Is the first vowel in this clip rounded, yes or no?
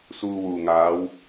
yes